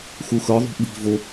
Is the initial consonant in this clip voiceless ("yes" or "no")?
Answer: yes